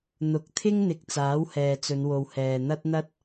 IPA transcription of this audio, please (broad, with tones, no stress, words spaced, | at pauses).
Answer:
n̪ʊ˨˥k̚t̪ʰɪ˥ŋn̪ɪ˨k̚ t͡saː˨˥whɛː˨t͡sɵ˨˧nwo˨w hɛː˨n̪ɐ˥t̚n̪ɐ˥t̚